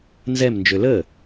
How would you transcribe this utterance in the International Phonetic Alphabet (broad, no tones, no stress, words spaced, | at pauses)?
nzɛmnd͡ʒø lə